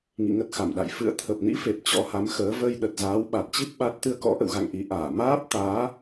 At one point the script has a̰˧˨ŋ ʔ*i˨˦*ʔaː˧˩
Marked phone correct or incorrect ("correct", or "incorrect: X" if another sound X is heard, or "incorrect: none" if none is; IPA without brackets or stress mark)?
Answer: correct